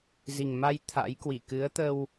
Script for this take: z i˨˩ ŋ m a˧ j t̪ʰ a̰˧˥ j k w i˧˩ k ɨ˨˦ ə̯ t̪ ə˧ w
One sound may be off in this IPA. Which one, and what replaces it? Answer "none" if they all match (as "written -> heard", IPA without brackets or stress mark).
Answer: none